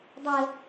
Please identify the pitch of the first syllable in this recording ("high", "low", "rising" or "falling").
low